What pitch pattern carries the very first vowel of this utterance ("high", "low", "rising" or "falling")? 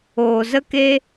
low